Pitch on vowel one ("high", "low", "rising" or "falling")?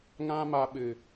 high